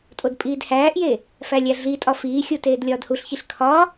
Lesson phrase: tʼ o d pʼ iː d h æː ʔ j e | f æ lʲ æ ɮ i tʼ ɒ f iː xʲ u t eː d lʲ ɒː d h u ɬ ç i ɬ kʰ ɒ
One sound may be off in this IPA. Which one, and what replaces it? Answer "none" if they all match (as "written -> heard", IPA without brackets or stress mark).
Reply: none